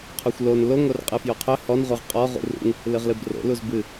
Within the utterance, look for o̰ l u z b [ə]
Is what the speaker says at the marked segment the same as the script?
no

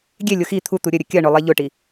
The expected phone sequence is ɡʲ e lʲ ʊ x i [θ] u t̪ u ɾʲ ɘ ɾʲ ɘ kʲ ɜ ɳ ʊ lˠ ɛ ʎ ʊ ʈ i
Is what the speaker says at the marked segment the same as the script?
no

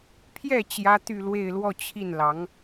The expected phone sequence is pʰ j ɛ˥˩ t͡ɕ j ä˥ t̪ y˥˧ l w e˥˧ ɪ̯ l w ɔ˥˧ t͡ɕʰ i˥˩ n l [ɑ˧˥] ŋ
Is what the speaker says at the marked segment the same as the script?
yes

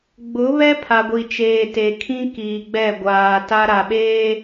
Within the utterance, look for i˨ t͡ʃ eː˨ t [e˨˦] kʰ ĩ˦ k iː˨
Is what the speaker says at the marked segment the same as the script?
no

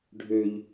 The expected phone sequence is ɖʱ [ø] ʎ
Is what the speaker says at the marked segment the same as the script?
yes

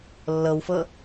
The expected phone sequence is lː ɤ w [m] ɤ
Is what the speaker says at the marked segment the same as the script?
no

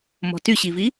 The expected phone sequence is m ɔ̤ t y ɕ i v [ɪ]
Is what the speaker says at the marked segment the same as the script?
no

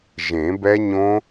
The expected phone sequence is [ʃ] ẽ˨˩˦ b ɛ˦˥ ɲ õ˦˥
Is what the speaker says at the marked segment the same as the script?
no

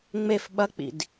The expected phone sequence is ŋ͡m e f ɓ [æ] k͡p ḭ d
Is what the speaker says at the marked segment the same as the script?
no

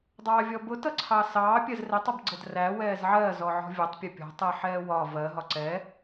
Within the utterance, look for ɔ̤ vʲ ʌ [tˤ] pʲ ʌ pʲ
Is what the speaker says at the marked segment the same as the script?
yes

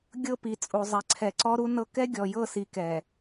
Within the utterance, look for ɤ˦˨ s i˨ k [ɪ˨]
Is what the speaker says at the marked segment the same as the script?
no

